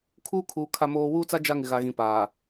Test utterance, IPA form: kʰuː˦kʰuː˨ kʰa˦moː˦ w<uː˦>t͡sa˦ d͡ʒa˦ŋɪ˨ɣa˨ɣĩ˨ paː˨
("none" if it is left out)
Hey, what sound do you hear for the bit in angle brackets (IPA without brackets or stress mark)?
uː˦